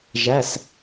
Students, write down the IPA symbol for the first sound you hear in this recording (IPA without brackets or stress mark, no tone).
ʒ